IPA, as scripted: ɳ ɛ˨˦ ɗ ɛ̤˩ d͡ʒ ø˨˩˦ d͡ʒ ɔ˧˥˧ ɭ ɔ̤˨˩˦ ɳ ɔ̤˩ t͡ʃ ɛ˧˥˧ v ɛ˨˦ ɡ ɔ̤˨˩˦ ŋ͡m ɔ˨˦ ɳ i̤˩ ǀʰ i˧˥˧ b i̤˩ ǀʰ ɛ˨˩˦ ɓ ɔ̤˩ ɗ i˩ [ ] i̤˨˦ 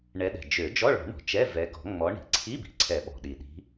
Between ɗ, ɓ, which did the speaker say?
ɗ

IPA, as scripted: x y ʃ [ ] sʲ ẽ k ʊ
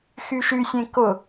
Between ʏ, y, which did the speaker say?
y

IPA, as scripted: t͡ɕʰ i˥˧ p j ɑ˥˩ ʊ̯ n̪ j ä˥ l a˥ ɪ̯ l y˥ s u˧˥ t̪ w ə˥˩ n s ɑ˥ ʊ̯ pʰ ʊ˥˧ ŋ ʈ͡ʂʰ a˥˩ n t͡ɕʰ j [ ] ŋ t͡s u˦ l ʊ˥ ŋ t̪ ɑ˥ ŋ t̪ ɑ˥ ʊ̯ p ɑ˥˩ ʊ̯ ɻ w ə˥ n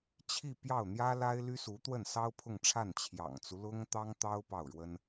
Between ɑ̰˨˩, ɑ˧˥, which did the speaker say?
ɑ̰˨˩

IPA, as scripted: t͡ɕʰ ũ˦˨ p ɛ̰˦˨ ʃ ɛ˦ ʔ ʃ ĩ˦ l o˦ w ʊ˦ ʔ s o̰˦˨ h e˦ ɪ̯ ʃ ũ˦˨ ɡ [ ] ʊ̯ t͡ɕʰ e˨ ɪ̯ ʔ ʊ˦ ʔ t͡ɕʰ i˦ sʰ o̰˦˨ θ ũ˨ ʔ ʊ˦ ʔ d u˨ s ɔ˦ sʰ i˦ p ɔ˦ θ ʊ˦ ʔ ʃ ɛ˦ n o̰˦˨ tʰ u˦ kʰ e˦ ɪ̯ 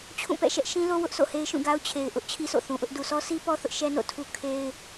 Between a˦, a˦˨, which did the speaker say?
a˦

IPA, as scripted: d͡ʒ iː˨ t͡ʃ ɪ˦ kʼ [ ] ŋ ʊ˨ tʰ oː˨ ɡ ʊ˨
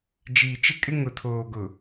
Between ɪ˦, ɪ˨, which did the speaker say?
ɪ˦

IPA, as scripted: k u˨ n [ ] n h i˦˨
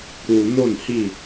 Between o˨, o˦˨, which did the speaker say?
o˦˨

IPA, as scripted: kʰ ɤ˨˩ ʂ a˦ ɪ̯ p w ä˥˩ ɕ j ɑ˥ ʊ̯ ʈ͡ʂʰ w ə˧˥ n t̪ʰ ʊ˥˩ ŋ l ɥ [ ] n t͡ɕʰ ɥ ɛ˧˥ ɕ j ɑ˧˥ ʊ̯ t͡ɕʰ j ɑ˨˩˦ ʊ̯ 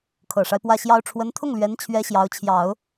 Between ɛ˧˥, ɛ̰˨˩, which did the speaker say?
ɛ˧˥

